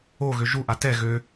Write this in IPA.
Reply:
oɣø ʒuʔa tɛ ɣø

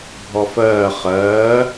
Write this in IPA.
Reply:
bʱɔfɜː χɜː

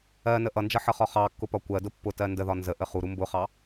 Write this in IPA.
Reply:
ɜ nəʔʌnd͡ʒʌ ħʌχɒχɑkːʊ pɒkʷɜdʊ pːʊtɜ ndəðɒ nzəʔə χuɾu mbʊχɑ

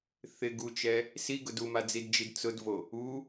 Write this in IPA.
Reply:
θɪ ɡut͡ʃɛ | siɡʊd umad͡zidd͡ʒid t͡sʊdvo | u

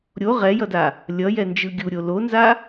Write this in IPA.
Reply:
ɾʲo ʁɛjʌda | lʲʌjɛnd͡ʒɯ ɡʲuɾʲo lonza

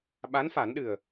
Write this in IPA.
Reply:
ɓa˧˥nfa˨˩˦nɗɨ˨˩ə̯

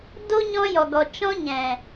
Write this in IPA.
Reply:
do˦ ɲɔ̃˦jɔ˨ɡɔ˨ t͡ʃɔ̃˦ɲɛ̃˨

